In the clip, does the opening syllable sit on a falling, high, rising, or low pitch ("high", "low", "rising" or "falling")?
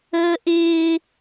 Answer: high